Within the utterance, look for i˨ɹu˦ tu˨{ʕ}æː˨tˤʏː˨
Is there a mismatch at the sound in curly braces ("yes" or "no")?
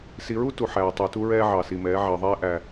yes